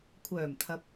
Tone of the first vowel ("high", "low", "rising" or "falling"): low